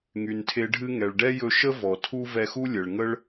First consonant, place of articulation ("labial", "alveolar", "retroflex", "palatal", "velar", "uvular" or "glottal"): velar